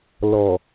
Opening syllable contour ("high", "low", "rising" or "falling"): low